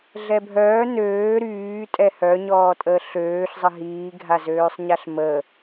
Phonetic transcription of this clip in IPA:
ɮ ɛ bʱ œː n øː ɾ yː tʼ ɛ h œ ɲ ɔː tʼ əː ɬ øː ɬ zˤ ə ɦ iː ɡʱ a z øː sˤ ɲ a ɬ m ə

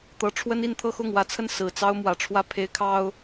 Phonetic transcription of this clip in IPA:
t̪ ɤ˧˥ ʈ͡ʂʰ w ə˥ n i˥˧ n t̪ʰ ɤ˥˧ x ʊ˥˩ ŋ w ä˧˥ t͡sʰ ə˥˩ n s ɹ̩˨˩ t͡s ɑ˥ ʊ̯ m w ä˨˩ ʈ͡ʂʰ w ä˥˩ pʰ e˧˥ ɪ̯ kʰ ɑ˥ ʊ̯

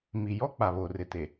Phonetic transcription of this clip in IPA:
m i˨ j ɔ˦ k͡p a˨ β o˨ r ɪ˨ t e˨

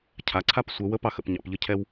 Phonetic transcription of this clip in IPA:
cʰ a˨˦ ǀʰ a˥ p sʷ ɛ˨˦ w ə˨˦ p ɑ˥ x ə̰˨˦ p ɲ ɑ̰˨˦ p ʎ ə˥ cʰ ɛ˥ w

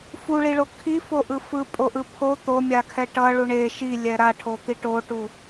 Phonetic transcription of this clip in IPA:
f u ɭ i ɭ o kʰ i f o ʔ ɯ f ɯ pʼ o ʔ ɯ pʰ o t̪ o mʲ a kʰ ɛ ʈ ʌ ɭ u ɳ e ʃ i lʲ ɛ ɾ a ʈʰ o t̪ i ʈ o ʈ u

